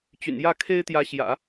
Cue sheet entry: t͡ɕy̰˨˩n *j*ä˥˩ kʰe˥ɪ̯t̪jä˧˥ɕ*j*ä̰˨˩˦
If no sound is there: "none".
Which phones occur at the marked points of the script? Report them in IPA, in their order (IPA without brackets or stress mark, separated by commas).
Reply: j, j